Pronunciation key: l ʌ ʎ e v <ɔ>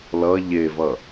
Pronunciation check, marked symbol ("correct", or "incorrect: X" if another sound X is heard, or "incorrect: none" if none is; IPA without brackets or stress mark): incorrect: ʌ